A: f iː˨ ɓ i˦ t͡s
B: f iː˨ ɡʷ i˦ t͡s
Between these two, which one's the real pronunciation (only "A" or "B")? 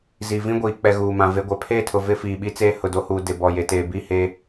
A